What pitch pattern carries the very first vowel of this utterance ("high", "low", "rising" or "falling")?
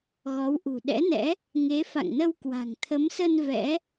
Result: rising